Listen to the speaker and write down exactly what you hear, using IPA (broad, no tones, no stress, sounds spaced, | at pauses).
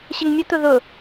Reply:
ɕ ɛ ŋ mʲ ʊ t̪ ʊ ð ʊ